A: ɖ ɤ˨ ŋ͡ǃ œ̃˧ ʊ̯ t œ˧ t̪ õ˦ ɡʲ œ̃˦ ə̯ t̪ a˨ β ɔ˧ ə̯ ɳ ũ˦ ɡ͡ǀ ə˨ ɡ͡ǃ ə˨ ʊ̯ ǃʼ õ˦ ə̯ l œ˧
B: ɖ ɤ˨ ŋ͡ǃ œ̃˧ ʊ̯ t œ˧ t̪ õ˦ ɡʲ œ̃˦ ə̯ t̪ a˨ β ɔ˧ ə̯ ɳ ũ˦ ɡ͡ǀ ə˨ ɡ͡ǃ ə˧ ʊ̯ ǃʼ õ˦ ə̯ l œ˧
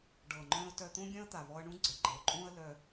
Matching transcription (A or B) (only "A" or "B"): A